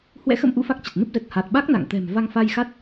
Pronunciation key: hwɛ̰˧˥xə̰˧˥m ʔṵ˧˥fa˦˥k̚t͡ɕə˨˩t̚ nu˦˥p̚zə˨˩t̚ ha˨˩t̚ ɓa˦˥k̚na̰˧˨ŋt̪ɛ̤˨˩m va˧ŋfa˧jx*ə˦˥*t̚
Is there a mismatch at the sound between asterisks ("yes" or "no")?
yes